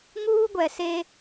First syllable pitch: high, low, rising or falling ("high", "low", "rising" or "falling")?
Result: high